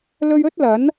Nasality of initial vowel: oral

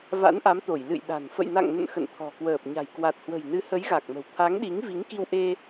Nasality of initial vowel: oral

